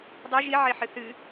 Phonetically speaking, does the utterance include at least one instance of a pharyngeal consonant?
yes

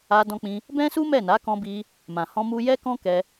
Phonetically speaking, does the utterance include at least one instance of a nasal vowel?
yes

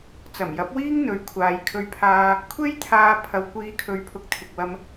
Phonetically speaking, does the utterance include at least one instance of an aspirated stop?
yes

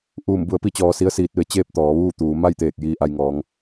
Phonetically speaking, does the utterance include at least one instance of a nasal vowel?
no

